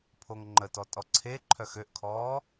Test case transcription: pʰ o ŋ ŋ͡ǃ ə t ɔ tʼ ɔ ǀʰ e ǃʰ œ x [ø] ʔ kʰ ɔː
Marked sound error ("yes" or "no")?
no